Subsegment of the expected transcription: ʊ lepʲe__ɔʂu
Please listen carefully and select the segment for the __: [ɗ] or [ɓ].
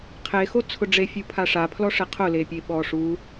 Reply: ɓ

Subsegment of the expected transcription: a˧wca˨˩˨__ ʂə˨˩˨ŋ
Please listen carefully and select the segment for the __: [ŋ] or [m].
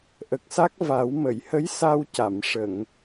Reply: m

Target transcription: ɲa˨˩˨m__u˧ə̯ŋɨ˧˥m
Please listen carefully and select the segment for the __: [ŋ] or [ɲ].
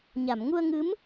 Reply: ŋ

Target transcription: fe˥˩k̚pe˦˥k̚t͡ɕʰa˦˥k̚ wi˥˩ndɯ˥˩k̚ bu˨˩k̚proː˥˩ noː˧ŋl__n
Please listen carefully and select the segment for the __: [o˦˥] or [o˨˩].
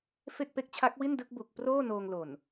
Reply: o˨˩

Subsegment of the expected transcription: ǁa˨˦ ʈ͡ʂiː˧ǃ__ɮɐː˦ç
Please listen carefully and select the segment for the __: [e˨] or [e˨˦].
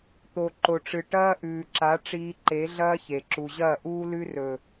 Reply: e˨˦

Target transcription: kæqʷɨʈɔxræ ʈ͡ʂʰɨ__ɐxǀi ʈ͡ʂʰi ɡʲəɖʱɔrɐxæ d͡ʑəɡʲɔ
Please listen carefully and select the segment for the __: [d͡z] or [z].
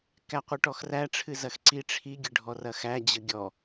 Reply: z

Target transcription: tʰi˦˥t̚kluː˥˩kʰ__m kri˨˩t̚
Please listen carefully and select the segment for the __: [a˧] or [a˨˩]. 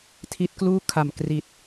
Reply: a˨˩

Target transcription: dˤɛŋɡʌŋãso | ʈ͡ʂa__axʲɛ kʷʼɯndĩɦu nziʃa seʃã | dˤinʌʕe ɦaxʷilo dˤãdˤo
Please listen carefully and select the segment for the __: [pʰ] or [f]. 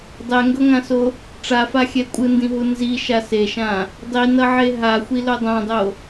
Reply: f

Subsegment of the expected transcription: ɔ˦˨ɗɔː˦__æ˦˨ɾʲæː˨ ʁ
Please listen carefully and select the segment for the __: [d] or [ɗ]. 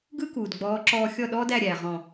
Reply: d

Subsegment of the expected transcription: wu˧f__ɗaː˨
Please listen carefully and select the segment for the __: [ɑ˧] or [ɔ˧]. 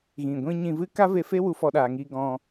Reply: ɔ˧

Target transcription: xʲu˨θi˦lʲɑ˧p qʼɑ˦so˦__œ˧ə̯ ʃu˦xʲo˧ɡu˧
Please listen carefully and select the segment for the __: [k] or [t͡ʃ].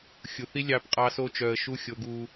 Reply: t͡ʃ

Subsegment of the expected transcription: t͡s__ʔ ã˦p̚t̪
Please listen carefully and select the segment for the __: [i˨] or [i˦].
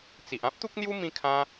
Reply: i˨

